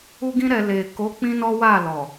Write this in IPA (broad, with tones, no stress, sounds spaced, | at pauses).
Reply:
u˦ ɡ ĩ˦ ɾ ɛ˧ l e˨ k o˨˦ k͡p ĩ˦ n ɔ˦ w a˦˨ l ɔ˨